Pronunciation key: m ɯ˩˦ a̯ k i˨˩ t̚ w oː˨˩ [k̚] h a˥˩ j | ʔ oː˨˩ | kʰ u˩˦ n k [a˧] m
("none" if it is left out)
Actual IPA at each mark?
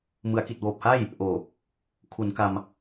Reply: p̚, a˧

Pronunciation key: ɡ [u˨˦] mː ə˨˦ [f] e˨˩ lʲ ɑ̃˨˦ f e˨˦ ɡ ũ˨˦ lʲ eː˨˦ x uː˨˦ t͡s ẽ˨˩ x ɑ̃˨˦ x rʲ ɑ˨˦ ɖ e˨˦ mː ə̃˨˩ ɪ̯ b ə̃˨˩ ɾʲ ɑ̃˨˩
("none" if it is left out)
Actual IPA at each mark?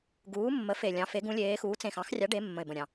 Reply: uː˨˦, f

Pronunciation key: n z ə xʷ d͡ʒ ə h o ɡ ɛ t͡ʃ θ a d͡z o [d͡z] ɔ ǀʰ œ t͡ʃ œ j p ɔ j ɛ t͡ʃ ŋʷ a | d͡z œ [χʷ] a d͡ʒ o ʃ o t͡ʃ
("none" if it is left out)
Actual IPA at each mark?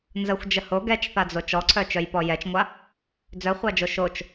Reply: t͡ʃ, χʷ

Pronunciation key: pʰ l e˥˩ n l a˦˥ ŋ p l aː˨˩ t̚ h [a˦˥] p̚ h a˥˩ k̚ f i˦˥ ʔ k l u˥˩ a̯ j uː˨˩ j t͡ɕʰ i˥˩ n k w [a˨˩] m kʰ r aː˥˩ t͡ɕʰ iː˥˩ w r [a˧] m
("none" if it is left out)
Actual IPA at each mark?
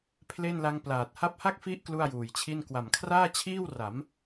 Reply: a˦˥, a˨˩, a˩˦

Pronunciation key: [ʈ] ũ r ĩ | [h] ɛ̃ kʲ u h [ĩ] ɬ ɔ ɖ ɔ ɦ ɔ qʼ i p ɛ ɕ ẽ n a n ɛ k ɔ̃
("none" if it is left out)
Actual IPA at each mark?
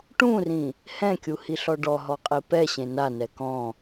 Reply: ʈ, h, i

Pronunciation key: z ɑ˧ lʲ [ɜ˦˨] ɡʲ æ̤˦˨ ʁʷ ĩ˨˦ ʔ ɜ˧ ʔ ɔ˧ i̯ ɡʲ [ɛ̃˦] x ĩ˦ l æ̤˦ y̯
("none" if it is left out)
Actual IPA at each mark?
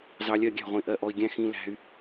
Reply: ɜ˦˨, æ̃˦

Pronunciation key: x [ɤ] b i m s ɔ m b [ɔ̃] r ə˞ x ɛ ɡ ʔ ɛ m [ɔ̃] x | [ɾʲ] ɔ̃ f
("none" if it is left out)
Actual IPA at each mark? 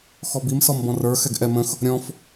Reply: ɔ, ɔ̃, ə̃, ɾʲ

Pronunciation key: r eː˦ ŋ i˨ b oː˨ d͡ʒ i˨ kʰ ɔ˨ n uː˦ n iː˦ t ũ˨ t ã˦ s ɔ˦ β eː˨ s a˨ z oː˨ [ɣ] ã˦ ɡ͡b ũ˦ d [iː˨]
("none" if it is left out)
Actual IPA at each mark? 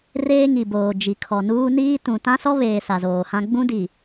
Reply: h, i˨

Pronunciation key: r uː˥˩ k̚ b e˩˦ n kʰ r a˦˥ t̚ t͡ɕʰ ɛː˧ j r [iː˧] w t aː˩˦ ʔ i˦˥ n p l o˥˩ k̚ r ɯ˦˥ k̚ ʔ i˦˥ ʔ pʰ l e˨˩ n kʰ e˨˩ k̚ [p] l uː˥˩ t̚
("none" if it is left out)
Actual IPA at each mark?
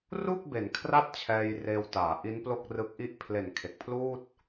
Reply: eː˧, pʰ

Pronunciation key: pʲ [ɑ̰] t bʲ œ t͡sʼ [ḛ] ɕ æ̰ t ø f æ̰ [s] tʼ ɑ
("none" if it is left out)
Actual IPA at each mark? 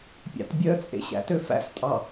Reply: ɑ̰, ḛ, s

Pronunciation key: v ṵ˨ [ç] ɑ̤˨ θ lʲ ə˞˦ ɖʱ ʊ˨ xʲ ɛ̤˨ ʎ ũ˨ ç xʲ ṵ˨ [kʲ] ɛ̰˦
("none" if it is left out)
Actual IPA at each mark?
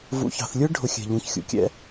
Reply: ç, kʲ

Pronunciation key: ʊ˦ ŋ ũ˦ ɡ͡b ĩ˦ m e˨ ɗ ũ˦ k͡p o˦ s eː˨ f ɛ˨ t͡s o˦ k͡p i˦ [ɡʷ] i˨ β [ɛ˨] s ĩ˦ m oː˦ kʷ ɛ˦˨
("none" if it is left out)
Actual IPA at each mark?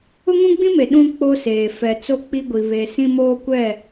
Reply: ɡʷ, e˨

